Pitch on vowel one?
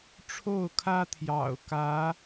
falling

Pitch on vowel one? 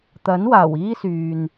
rising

